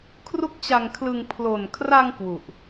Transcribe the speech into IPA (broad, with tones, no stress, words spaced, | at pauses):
kʰru˥˩k̚t͡ɕa˧ŋkʰlɯ˧ŋ pʰlo˨˩nkʰra˧ŋ kwu˨˩ʔ